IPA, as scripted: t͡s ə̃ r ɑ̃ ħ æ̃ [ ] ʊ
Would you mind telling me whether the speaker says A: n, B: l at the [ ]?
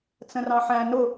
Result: A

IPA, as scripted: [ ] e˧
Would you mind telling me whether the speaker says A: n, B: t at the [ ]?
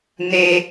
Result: A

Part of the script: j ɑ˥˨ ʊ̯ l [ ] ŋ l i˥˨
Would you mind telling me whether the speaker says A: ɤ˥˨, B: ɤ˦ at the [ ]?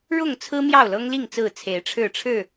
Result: B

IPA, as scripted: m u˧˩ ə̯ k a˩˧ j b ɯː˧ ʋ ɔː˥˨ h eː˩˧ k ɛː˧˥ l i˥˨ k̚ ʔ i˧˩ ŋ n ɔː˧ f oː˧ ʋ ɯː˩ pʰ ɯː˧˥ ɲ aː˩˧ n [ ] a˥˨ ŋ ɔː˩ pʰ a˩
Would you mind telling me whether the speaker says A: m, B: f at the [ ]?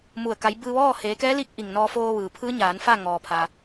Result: B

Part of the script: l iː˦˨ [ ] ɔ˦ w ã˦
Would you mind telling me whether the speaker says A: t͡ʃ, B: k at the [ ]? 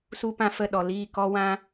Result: B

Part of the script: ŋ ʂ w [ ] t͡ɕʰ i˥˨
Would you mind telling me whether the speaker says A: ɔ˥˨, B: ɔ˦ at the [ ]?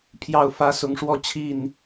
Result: A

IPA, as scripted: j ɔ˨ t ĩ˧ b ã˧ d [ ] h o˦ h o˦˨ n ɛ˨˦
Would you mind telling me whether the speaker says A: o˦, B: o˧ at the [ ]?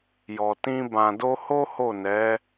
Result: A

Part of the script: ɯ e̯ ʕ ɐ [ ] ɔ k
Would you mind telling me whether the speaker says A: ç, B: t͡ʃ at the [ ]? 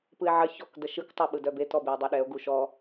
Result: A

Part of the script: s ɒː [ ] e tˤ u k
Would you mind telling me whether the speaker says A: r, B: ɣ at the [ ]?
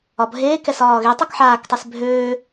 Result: B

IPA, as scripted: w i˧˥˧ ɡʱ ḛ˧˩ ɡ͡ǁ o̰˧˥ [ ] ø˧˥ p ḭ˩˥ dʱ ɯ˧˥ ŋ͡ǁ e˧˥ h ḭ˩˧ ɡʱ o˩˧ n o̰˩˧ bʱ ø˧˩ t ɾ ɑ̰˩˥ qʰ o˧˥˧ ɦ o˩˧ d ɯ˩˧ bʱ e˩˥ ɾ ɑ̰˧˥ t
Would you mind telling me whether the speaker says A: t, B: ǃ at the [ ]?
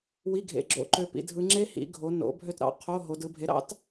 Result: B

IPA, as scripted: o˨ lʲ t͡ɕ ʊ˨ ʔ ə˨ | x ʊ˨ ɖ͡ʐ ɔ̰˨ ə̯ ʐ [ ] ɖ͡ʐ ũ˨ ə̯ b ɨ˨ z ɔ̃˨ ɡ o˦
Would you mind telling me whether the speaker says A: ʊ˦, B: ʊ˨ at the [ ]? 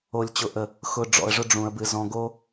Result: A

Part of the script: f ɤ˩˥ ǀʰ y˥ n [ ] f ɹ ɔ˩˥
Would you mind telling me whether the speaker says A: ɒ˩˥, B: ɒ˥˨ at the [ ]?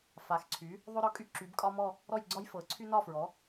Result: B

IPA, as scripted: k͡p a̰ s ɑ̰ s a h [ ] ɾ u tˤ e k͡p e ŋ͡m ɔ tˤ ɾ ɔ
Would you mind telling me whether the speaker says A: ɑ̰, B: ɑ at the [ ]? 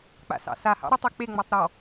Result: A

